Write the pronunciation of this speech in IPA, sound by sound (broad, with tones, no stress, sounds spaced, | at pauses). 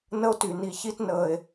n ə˦ o̯ t y˩ n i˨ ç i˥ t n əː˨ e̯